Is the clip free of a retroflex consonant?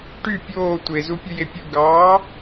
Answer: no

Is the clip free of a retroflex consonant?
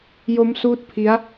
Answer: yes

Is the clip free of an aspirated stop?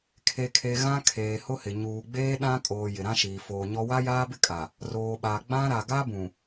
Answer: no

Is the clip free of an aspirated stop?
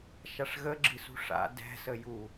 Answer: yes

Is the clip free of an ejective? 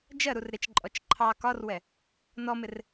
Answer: no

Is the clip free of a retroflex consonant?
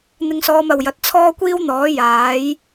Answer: yes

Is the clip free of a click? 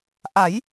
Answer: yes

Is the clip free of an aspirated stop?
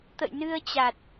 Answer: yes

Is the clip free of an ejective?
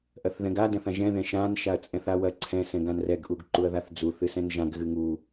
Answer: no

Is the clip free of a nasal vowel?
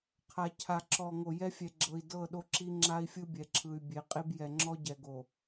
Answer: yes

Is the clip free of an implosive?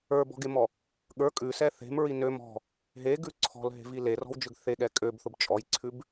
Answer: no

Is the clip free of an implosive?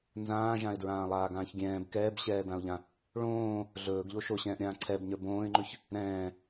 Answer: yes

